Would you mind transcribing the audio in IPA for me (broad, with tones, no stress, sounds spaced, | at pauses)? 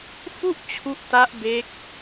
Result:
f u˥˩ ʔ t͡ɕʰ u˦˥ ʔ t a˦˥ ʔ b e˦˥ k̚